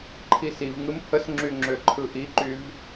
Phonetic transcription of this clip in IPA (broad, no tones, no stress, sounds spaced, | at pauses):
ǃʰ i s i v ŋ ɯ m h ə s ŋ͡ǁ y ŋ͡ǁ ø ǃʰ ɯ ʔ i ǃ y v